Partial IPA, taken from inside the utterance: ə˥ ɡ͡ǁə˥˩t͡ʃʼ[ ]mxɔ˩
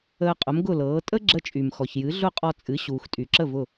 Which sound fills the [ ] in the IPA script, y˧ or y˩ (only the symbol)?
y˩